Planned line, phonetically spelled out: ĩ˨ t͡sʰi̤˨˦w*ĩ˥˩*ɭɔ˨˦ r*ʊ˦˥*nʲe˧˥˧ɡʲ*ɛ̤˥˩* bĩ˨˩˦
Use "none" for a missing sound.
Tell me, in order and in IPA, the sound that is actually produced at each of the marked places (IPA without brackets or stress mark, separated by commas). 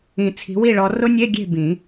i˥˩, ʊ˦˥, e̤˥˩